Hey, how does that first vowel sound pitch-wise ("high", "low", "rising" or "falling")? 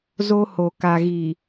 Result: high